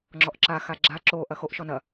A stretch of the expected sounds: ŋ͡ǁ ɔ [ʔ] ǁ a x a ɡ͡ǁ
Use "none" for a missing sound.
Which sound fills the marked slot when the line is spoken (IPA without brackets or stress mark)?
ʔ